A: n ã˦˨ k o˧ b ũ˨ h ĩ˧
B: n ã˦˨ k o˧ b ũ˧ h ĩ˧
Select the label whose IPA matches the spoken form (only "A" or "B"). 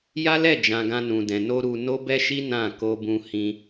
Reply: B